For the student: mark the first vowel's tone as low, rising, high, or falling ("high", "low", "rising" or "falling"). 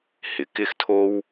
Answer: rising